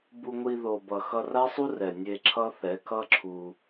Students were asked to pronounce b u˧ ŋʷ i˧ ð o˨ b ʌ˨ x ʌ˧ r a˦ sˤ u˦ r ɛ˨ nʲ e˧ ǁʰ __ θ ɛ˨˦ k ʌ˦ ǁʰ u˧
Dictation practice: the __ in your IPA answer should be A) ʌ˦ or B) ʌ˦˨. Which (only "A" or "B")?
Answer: A